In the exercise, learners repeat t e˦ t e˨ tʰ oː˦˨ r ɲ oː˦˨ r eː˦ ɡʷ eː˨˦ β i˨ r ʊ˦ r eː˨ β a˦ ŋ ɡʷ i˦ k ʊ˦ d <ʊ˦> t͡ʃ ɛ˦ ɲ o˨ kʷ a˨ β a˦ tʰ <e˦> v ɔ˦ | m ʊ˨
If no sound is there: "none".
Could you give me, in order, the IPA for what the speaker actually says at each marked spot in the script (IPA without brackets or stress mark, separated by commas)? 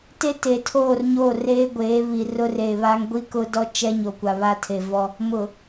ɔ˦, e˨